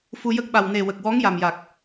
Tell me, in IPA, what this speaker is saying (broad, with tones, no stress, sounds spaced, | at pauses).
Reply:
f u˧ j ə˦˥ k̚ ɓ a˨˩ w n e˨˩ w ə˨˩ k̚ w ɔ˧˥ ŋ j a˨˩ m j a˨˩ k̚